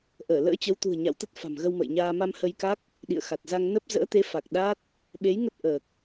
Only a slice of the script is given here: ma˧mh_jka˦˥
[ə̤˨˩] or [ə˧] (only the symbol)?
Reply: ə˧